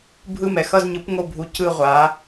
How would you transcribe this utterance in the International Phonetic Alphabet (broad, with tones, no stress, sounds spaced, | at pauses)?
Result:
bʱ ɯ˥˩ m ɛ˥˩ x ʌ˥˧ z ɲ ɯ˨˥ p ŋ o˥˩ bʱ u˨˥ c ɯ˥˧ ʁʷ a˨˥